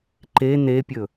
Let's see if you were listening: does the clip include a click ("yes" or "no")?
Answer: yes